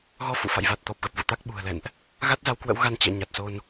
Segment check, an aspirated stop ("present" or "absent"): absent